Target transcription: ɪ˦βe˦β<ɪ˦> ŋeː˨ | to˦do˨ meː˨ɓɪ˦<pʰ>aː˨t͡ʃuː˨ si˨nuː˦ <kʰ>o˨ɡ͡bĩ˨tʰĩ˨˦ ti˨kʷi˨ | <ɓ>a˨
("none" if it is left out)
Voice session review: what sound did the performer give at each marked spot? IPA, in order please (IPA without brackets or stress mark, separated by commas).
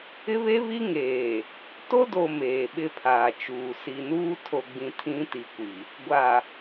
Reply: i˦, pʰ, tʰ, ɡʷ